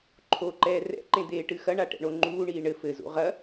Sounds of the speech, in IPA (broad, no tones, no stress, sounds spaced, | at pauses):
ǃʰ o ǃ ɛː r ɛ̰ ǃ ẽ d̪ eː ʈ ɨ x ɐ ɳ a ʈ ɛ̰ ɳ o ŋ͡ǃ uː ɳ iː ɳ ɘ f ɘ z ṵ ʁ ɐ